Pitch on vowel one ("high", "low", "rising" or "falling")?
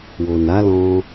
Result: low